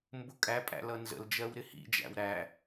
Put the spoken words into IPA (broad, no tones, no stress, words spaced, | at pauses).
mbʊkʼæ pʼæ̰lʌnzə̰l d͡ʒɜwɾɪhḭ d͡ʒæ̰wɾæ